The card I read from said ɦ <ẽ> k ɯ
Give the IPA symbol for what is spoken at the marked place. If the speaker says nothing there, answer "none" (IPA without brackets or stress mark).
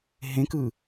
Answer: ẽ